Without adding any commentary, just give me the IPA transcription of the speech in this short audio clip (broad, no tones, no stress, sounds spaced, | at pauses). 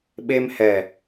ɓ e m h ɛ